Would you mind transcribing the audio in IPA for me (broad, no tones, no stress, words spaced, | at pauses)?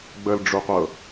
ɡ͡bəlɖ͡ʐuqʷɤ